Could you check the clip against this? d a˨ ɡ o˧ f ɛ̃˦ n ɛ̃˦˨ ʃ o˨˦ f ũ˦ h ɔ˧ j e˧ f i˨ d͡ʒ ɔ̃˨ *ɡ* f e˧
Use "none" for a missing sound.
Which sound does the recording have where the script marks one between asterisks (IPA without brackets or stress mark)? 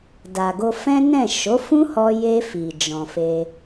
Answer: none